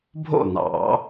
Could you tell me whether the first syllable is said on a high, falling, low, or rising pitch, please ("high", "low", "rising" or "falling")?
falling